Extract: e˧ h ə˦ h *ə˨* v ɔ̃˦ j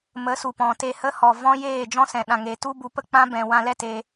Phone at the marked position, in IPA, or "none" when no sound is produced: ɔ˨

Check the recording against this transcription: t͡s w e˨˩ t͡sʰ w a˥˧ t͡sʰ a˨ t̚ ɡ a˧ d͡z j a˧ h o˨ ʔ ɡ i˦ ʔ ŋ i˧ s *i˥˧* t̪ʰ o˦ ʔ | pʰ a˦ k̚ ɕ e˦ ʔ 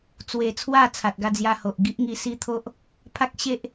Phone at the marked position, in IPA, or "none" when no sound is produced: i˦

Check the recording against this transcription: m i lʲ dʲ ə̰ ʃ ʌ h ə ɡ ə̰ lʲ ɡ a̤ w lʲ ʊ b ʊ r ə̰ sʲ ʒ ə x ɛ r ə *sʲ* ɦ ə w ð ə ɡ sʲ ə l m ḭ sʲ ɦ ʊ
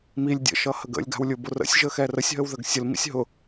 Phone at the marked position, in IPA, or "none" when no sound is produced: sʲ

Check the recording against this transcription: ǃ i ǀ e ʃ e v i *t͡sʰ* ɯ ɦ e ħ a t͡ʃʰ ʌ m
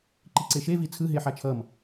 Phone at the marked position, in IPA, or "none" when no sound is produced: t͡sʰ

